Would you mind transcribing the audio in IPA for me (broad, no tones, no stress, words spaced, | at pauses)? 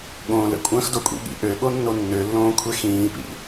ɠõːlə̰kʷʼɐ̃ːx dokʷʼḭɠḭ ʔøɠonːo nːølːõːkʷʰe xĩːpḭ